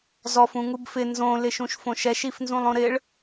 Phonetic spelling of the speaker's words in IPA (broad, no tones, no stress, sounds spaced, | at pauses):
z ɔ f ũ ŋ u b f ɪ n z õ l ɪ ʃ ũ ʃ f õ ʃ ɛ ʃ i f n z ũ lˠ õ ɾ ɪ ɭ